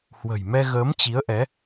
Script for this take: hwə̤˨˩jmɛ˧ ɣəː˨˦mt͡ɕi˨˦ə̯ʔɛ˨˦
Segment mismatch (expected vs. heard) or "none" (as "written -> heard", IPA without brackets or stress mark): none